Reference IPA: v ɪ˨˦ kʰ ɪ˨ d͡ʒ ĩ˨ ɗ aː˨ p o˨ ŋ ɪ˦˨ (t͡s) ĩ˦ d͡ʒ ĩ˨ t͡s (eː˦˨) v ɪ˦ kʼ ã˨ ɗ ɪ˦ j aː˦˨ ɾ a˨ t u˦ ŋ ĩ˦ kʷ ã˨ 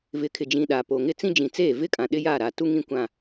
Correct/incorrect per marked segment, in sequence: correct, correct

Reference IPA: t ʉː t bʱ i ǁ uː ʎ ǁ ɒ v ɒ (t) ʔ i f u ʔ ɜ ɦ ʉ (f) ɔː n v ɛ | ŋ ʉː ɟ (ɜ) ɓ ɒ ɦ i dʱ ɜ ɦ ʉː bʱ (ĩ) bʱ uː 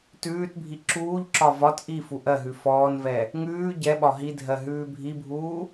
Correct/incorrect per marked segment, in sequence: correct, correct, incorrect: ɛ, incorrect: i

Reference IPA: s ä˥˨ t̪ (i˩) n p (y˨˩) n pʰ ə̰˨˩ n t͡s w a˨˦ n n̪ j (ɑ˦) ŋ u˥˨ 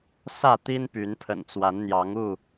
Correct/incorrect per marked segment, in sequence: incorrect: i˦, incorrect: y˨˦, incorrect: ɑ˨˦

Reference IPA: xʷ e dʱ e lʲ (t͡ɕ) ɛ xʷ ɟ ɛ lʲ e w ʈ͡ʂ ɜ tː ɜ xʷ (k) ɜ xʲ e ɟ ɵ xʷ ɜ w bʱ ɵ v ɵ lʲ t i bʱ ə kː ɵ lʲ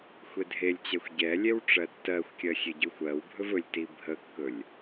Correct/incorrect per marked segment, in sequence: correct, incorrect: kʲ

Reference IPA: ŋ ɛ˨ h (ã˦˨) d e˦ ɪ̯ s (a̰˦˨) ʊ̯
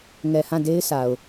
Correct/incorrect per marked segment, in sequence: correct, incorrect: a˨

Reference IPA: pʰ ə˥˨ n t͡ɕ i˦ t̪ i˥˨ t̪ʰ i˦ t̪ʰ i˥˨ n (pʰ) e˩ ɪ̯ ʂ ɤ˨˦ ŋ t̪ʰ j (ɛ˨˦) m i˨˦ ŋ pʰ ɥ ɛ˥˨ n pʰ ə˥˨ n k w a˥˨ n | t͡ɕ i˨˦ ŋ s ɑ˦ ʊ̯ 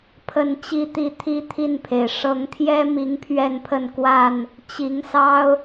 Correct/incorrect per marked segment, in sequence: correct, incorrect: ɛ˦

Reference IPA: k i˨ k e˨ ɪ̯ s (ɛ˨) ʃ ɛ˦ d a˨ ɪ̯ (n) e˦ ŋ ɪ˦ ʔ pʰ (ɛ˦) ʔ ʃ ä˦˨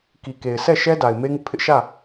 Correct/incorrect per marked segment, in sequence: incorrect: ɛ˦˨, incorrect: m, incorrect: ɪ˦

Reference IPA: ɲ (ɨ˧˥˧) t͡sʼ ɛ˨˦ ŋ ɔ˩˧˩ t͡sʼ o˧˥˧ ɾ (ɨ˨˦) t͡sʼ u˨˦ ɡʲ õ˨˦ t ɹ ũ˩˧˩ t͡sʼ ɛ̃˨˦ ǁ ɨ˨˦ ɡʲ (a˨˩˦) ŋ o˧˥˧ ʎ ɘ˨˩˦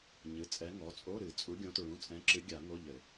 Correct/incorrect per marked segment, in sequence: incorrect: ɨ˩˧˩, incorrect: ɨ˨˩˦, correct

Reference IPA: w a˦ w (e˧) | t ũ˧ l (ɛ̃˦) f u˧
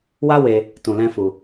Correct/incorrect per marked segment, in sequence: correct, correct

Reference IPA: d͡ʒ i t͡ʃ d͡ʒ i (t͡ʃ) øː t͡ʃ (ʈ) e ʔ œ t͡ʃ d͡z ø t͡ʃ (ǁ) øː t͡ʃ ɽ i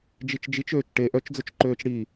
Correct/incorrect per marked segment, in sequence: correct, correct, incorrect: ǃ

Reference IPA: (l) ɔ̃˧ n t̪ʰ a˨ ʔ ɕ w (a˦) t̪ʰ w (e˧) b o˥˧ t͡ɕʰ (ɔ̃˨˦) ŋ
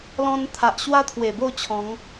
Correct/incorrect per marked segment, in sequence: correct, correct, incorrect: e˨˩, correct

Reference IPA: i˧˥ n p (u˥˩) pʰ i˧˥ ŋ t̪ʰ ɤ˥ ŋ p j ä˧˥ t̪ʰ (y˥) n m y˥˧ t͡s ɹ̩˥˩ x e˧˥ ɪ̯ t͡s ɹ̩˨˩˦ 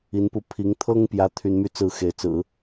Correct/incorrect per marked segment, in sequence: incorrect: u˧, correct

